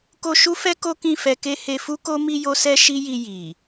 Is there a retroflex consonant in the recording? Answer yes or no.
no